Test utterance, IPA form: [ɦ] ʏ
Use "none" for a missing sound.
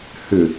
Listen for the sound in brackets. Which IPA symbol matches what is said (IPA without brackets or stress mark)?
h